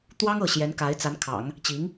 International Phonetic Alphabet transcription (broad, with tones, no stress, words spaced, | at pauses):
t̪wɑ˥ŋ ɤ˥˩ ɕjɛ˧˥nka˧˥ɪ̯t͡sa˧˥nkʰɑ̰˨˩˦ŋ | t͡ɕi˧˥ŋ